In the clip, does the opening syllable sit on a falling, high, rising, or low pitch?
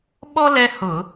high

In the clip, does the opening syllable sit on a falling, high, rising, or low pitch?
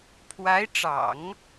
rising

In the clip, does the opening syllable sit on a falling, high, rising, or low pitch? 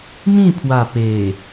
falling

